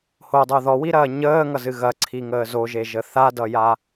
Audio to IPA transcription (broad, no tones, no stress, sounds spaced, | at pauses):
h o dˤ o ð ɔ w i ɾ ɐː ɲ əː ŋ ʌ z ɨ ɣ ɐ ǀʰ i ŋ əː z o ʒ e ʒ ə θ a d ʌ j a